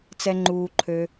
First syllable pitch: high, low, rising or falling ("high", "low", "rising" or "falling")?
high